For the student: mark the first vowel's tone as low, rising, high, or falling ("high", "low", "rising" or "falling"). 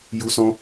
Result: high